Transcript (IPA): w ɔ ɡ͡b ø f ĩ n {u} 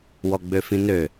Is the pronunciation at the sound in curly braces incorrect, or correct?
incorrect